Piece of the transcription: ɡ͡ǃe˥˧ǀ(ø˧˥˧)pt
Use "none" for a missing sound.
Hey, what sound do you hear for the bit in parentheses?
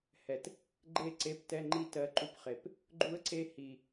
e˧˥˧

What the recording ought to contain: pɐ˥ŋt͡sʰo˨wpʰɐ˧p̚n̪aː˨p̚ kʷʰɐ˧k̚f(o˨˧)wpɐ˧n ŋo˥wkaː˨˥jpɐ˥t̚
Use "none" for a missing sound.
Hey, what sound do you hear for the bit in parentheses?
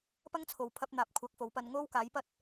o˨˥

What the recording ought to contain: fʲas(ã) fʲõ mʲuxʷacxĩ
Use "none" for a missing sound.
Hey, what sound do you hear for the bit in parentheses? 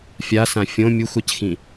ã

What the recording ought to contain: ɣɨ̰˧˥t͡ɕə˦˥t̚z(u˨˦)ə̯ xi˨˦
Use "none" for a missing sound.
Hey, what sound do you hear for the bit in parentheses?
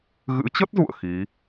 ṵ˧˨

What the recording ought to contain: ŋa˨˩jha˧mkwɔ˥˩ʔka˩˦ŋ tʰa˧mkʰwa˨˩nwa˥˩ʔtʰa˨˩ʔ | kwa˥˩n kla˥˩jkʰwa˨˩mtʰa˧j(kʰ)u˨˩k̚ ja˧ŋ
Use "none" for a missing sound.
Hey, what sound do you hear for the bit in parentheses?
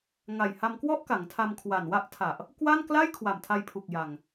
pʰ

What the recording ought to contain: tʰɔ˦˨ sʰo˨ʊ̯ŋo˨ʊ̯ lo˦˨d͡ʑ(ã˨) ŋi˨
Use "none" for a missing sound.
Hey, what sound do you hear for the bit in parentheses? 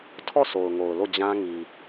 ã˦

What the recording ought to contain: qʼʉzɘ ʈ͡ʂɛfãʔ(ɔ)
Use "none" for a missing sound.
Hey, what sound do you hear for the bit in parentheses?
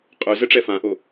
o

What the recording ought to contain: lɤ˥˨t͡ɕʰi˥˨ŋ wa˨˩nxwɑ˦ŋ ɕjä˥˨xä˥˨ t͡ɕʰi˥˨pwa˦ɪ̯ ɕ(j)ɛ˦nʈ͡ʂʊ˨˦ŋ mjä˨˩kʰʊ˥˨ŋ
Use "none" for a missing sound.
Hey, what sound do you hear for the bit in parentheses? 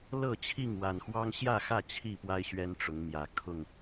ɥ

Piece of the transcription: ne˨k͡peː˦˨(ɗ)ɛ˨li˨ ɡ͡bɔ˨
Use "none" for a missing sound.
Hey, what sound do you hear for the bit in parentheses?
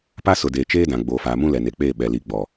ɓ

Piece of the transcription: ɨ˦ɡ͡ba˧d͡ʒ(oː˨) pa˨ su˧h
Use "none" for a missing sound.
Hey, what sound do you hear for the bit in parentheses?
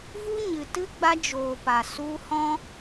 oː˨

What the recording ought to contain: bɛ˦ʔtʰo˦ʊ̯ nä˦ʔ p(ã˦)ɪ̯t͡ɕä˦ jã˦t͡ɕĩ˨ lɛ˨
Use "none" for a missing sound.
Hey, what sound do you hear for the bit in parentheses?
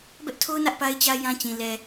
a˦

